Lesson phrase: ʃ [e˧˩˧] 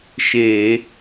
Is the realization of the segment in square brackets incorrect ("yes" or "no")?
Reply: no